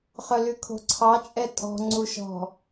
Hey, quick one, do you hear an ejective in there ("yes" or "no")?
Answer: yes